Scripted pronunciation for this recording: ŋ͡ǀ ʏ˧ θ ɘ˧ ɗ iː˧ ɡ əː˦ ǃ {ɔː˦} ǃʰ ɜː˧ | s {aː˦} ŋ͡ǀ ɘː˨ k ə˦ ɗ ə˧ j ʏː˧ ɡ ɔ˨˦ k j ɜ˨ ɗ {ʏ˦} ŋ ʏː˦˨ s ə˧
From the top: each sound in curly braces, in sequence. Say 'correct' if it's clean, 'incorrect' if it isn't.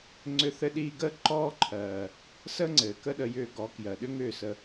correct, incorrect: əː˦, correct

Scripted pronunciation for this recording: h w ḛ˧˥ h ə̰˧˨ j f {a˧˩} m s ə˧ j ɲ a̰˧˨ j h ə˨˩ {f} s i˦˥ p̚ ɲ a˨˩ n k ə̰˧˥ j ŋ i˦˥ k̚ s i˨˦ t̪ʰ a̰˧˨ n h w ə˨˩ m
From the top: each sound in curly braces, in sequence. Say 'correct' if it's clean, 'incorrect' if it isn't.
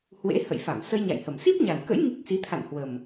correct, incorrect: m

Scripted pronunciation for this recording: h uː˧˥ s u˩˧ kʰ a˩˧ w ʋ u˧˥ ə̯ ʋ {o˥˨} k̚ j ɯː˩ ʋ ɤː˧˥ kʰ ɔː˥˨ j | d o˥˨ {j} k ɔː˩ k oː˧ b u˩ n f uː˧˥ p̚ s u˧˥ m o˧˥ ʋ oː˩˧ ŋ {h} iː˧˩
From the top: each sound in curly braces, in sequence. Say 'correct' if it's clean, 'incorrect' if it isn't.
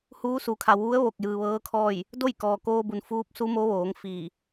incorrect: o˧˩, correct, incorrect: f

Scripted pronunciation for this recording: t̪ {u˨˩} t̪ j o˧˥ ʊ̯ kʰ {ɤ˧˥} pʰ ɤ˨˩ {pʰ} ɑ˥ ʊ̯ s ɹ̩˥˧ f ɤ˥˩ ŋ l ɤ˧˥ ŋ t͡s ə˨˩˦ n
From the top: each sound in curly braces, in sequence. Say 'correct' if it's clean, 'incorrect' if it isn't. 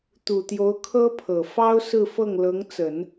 correct, incorrect: ɤ˥, incorrect: f

